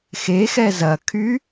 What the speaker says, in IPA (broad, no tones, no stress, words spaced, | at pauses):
xexɛ zɐkʰy